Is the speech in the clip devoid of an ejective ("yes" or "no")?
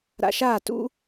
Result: yes